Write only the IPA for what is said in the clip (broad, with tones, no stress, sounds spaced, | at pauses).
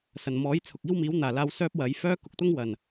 s ɐ˨˩ n m ɔː˨˥ j t͡sʰ ʊ˨ k̚ iː˥ w m iː˨˥ w n̪ aː˨˩ l aː˧ w s œː˥ p̚ w ɐ˨˥ j f œː˥ k ʊ˧ k̚ t̪ ʊ˥ ŋ w ɐ˨˩ n